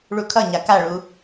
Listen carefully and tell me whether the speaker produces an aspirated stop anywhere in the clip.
yes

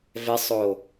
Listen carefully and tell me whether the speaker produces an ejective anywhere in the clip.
no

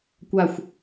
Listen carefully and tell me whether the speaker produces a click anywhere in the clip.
no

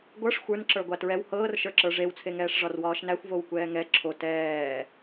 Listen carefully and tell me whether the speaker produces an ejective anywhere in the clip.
no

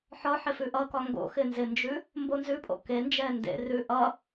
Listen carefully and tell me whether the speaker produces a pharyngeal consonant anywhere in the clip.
yes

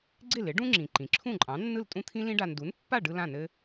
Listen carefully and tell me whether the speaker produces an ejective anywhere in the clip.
yes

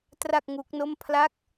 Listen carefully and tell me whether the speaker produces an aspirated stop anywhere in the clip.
yes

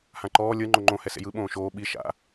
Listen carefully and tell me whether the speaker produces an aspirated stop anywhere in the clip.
no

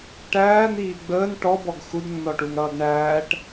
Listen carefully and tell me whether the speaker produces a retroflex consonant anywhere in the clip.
yes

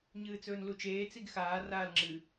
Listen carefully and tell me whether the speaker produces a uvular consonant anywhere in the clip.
no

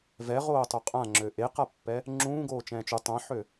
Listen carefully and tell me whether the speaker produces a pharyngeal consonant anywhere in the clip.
yes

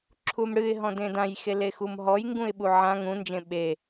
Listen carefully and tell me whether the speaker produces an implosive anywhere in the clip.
yes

